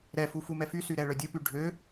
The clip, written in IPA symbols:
ɾ ɛ f u f u m ɛ f y s y ɾ ɛ ɭ œ dʲ ə p y ɖʱ ø

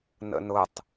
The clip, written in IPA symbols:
n ə̰ n ʊ tˤ

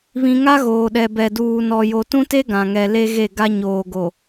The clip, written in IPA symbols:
β ĩ˦ ŋ a˦ ɣ oː˨ ɗ ɛ˨ b ɛ˨ d uː˨ n ɔ˨ j o˨ t ũ˦ t e˦ ɡ ã˨ ŋ ɛ˨ l e˦ ɣ e˦˨ ɡ a˦ ɲ oː˨ ɡ o˨

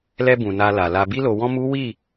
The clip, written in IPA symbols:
l ɛ˧ b ũ˨ n a˧ l a˨ l a˧ b i˧ l o˨ w ɔ̃˧ m u˦ w i˦˨

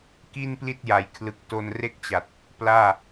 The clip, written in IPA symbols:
k i˥˩ n p l i˥˩ t̚ j a˩˦ j kʰ l ɯ˨˩ k̚ t o˧ n r e˥˩ k̚ t͡ɕ a˨˩ t̚ | p l aː˥˩

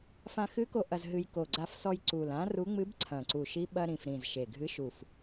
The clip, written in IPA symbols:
f ã˧ x ɨ˧˥ k o˧ ʔ ɐ˧ z ɦ ɨ˧ j k o˨˩ ɡ͡ǀ a˧ f s ɔ˧ j ǀ u˨˩ l ã˧˥ r u˧˥ ŋ͡m ɨ˧˥ b ǀʰ ɐ̃˨˩ ǀ u˨˩ ʃ i˧˥ ɓ ɐ˧ ɾ ĩ˨˩ f ɾ ĩ˨˩ z ʃ e˨˩ ɡʱ ɨ˧˥ ʃ u˨˩ f

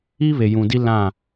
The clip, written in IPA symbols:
i˦ β e˨ j ũ˨ d i˦ l ã˦˨

